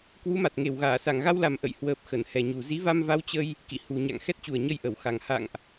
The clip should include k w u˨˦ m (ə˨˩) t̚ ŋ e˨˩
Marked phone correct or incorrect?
incorrect: a˨˩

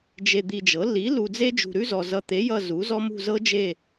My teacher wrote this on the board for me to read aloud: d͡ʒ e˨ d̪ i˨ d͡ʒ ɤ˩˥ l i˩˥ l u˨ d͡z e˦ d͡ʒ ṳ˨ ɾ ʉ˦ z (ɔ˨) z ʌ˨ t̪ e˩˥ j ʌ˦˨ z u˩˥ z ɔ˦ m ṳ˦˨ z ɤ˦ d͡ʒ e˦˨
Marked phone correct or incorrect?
correct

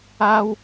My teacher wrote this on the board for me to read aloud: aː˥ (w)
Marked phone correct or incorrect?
correct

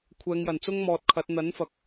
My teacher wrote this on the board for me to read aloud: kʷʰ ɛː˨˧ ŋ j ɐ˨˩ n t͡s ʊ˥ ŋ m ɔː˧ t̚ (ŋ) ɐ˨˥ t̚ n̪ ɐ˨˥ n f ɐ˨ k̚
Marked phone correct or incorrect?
incorrect: kʰ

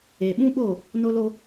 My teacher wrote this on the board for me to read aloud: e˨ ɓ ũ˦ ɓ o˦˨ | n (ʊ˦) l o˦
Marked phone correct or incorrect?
correct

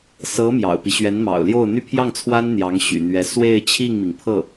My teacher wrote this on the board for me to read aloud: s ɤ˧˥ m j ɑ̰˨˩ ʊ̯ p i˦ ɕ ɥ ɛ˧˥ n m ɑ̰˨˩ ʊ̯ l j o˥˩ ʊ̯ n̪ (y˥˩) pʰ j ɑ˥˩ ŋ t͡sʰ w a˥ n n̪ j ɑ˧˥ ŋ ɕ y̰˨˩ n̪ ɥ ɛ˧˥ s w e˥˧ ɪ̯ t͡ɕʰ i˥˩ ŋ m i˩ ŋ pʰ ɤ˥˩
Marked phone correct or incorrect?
incorrect: y˥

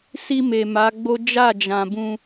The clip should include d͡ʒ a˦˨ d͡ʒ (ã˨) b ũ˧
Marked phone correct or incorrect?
correct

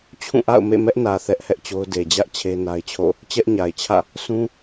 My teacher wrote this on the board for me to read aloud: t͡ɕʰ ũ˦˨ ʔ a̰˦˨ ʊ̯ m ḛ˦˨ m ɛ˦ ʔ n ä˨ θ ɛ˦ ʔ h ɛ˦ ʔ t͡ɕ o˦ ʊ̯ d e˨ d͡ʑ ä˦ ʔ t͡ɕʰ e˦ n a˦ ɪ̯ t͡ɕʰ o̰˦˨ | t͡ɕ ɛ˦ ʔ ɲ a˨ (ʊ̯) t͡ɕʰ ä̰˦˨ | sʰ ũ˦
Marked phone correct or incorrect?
incorrect: ɪ̯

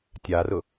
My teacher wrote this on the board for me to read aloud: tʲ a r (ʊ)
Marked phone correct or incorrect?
correct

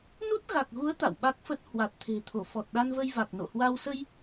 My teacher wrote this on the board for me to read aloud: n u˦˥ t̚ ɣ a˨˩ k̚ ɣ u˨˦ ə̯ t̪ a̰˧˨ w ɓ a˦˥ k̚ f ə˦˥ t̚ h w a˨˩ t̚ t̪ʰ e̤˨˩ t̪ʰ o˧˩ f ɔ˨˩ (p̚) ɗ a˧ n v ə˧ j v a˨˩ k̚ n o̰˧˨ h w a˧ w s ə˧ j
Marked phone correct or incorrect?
incorrect: t̚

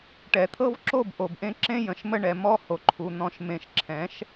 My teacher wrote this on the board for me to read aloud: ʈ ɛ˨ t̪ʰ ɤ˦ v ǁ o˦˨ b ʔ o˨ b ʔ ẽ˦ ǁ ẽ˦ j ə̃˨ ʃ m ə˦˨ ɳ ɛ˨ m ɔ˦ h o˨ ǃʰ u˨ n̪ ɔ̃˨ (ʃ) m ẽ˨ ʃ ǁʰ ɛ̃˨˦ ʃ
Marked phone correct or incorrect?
correct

